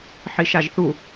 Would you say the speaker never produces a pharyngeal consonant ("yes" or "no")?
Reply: no